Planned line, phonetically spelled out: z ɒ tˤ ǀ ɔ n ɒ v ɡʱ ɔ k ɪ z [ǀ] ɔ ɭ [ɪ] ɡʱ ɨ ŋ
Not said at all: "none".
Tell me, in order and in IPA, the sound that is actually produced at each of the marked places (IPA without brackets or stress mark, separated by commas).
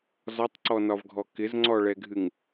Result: ŋ͡ǀ, ɛ